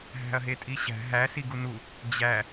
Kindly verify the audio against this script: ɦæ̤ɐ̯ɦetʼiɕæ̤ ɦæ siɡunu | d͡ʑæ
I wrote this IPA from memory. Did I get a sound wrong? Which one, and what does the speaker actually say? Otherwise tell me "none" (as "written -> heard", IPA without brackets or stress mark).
none